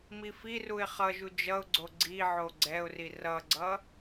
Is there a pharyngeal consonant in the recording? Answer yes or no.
yes